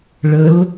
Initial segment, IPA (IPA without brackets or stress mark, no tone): ɭ